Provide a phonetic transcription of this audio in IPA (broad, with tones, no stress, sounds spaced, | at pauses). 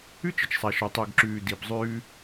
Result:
ʉ˦ t͡ʃ ə˨ t͡ʃ sˤ a˨ ʃ ɔ˨ tˤ o˨ ɡ ǁ ʉː˨ d i˨ b zˤ ʉː˦